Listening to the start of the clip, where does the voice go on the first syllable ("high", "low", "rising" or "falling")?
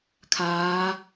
rising